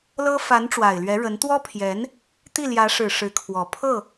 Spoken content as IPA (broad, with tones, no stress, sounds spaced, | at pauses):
l ɤ˥ f a˧˥ n ʈ͡ʂ w a˨˩ ɪ̯ l ɥ ɛ˧˥ ɻ ə˧˥ n t̪ w ɔ˥ pʰ j ɛ˧˥ n | t̪ i˥˩ l j ä˧˥ ʂ ɻ̩˨˩ ʂ ɻ̩˧˥ kʰ w ɔ˨˩ pʰ ɤ˥˩